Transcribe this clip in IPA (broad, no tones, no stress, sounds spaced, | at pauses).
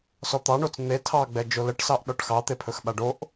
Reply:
s ɔ t̪ ɑ ɳ o t͡s n̪ e tʰ ɑ ɡ͡b ɛ d͡ʒ o l ə ʈ s ɑ ʔ ɗ ɔ ʈ x ɑ t̪ e pʰ ɵ x ɓ a ɖ o ʔ